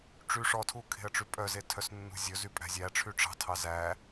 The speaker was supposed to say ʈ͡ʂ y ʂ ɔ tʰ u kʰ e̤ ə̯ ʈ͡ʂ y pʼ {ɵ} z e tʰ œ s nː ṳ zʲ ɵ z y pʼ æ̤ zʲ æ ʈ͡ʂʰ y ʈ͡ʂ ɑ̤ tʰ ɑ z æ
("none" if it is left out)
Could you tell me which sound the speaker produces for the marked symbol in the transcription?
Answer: œ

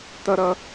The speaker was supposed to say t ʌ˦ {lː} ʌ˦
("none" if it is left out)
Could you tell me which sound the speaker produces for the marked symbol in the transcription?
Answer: ɾ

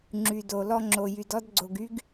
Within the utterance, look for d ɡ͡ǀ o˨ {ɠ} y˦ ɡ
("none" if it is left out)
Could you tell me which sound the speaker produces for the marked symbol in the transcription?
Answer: ɡ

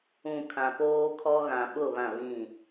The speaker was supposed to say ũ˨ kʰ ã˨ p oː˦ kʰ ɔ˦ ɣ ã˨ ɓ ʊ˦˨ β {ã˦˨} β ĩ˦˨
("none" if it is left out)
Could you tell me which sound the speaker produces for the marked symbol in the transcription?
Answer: ã˦˨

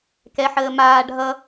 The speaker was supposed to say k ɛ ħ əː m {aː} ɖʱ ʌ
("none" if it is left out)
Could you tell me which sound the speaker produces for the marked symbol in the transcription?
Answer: aː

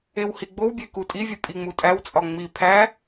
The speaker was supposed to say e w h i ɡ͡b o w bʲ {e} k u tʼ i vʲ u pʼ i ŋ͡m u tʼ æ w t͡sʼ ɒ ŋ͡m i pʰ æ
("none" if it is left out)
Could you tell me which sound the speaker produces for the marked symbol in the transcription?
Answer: e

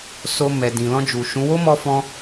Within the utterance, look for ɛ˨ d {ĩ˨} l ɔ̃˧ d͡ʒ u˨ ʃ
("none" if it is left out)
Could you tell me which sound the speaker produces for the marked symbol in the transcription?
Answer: ĩ˨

